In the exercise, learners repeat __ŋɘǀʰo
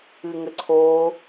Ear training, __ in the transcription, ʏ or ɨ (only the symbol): ɨ